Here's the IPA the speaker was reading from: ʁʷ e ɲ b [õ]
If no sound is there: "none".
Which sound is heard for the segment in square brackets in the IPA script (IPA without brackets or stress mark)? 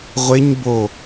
o